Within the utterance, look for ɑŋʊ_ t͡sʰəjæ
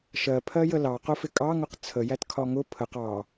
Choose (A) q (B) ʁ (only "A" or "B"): A